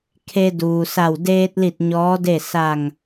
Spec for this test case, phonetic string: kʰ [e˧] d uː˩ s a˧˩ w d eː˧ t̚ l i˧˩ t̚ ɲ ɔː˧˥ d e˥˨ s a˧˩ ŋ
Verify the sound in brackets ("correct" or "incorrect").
correct